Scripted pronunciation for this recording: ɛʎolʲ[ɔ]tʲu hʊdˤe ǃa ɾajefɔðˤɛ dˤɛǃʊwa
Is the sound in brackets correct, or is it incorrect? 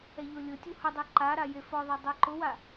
incorrect